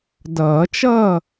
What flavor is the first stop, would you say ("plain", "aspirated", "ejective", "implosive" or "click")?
plain